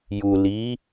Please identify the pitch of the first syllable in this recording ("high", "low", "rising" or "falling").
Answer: low